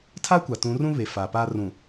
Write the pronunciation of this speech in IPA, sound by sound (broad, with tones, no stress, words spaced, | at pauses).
tʰa˦kʷa˨ tũ˨˦rũ˦βe˨ fa˨pa˦ rũ˨